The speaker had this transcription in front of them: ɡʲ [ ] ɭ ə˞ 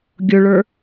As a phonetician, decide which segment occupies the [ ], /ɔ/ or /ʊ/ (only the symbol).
ʊ